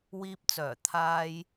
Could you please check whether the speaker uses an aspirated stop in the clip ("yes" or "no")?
yes